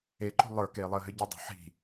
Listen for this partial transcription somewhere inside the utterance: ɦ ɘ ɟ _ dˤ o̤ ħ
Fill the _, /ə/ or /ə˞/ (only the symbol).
ə